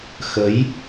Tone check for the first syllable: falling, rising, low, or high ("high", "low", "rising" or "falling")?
rising